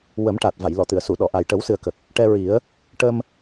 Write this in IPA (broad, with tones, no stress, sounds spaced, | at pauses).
w ə˨˩˦ m ʈ a˨˩ t̚ v a˨˩˨ j l ɔ˨˩˨ t̪ ɨ˨˩˨ ə̯ s u˨˩˨ ɗ ɔ˨˩˨ ʔ a˨˩ j ʈ ə˨˩˦ w s ɨ˨˩ ə̯ k ə˨˩ k̚ | ʈ ɛ˧ ɹ i˨˩˦ ə̯ | ʈ ə˧ m